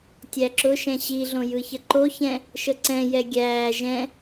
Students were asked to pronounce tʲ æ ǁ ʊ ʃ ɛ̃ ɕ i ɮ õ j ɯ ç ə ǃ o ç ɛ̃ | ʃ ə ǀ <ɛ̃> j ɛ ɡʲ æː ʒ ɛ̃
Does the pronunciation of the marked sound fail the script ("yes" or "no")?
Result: no